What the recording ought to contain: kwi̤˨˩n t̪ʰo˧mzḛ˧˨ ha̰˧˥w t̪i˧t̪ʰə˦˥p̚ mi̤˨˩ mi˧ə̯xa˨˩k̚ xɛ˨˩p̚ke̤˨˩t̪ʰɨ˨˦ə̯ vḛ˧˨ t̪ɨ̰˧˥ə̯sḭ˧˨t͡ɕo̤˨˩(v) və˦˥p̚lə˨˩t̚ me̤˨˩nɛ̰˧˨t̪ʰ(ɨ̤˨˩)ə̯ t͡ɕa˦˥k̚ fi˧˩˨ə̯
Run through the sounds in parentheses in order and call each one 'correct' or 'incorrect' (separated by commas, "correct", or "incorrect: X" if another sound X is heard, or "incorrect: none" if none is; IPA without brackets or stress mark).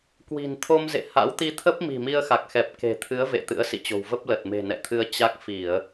incorrect: w, incorrect: ɨ˧